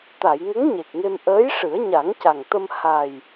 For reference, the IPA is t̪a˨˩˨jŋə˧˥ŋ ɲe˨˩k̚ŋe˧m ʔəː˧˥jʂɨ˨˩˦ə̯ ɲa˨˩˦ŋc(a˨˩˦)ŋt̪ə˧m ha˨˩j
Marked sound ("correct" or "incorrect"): incorrect